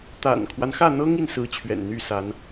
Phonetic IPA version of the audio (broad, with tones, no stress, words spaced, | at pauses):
t̪a̰˨˩nkʰwa˦nxä˥˩n̪ɤ˥ŋ i˥˩nsɹ̩˥t͡ɕʰɥɛ̰˨˩n n̪y˥˩sa˧˥n